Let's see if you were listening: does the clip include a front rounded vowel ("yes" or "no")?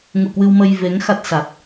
no